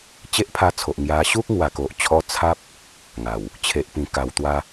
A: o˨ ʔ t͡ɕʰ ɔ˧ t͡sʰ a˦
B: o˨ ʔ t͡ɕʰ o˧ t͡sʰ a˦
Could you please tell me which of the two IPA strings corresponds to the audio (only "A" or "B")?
A